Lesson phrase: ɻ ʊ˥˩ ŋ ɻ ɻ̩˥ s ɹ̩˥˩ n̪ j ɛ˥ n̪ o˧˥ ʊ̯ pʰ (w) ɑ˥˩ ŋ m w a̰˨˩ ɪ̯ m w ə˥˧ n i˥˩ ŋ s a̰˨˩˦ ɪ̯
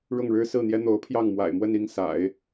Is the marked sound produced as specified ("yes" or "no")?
no